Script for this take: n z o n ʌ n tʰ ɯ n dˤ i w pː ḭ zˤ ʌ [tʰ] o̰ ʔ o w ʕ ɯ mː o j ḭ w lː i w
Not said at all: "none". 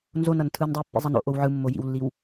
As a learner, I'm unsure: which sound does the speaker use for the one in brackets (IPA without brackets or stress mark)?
n